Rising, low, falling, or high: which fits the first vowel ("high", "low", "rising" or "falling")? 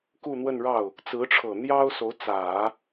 falling